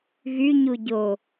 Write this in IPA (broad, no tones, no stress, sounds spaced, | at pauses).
ɣ y ɲ u ɟ o